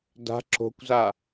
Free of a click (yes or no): no